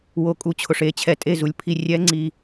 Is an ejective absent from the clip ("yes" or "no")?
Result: no